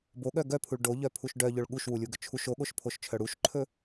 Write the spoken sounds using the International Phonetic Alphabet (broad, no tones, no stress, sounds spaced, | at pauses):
b o ɠ œ ɡ œ pʰ u ɭ ɖ o ʎ œ pʰ u ʃ ɖ œ ʎ ɵ ɭ ɠ u ʃ w u lʲ u ɡ ɵ t͡ʃʰ u ʃ o ɠ o ʃ pʰ o ʃ t͡ʃʰ œ ɽ u ʃ ǃʰ ɵ